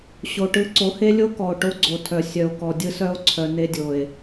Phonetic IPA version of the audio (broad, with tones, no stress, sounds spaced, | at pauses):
ɕ o˨ ʈ ɯ˦ ǀ o˨˦ h e˦ lʲ o˦ k ɔ˨ o̯ ʈ o˦ ɡ͡ǀ o˨ tʰ œ˨ sʲ œ˨ o̯ k ɔ˨ dʲ ɯ˦ s œ˦ o̯ ǀʰ œ˨ n e˦ dʲ o˨ e̯